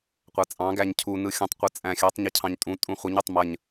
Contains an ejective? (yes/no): yes